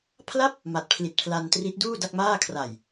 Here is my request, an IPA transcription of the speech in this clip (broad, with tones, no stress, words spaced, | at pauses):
pʰla˥˩p̚ | ma˨˩t̚pʰli˨˩t̚pʰla˧ntri˦˥t̚ duː˥˩ da˥˩k̚maː˥˩ kʰra˨˩j